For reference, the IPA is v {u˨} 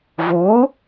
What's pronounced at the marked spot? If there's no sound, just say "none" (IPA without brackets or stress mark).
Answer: u˨˥